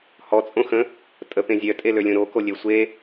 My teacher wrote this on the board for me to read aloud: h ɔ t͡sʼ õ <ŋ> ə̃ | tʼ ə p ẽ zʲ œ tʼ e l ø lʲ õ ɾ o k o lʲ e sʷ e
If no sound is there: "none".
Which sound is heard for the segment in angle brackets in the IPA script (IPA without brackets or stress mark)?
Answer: x